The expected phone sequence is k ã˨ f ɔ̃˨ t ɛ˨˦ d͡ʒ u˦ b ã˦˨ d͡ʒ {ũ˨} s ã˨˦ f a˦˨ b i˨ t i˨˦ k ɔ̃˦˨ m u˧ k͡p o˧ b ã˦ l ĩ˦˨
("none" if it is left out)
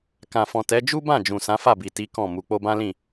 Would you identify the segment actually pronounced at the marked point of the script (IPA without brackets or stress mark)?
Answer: ũ˨